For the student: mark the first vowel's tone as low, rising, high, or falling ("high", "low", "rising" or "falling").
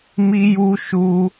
high